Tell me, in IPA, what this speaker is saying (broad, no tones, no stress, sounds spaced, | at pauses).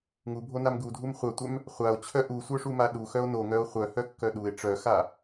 ŋ u bʱ o n a m ɡ u dʱ u m χʷ œ tʷ œ m | χʷ a o̯ t͡ɕʰ œ ʔ u sʷ œ ʂ u m a ɗ u x œ o̯ n o ŋ œ o̯ χʷ œ h œ kː œ ɗ u e̯ ʈ͡ʂ œ x a